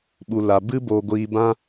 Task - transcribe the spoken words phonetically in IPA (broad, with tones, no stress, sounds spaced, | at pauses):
ɓ u˧ l a˧ b ɨ˦ b oː˧ ɡʷ iː˧ b ã˦